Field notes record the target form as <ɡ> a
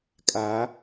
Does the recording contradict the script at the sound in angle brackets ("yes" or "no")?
yes